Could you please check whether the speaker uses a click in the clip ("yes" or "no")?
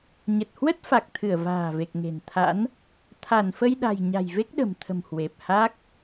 no